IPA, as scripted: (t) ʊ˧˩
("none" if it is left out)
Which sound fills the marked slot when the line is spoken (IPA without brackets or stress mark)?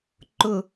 ǃ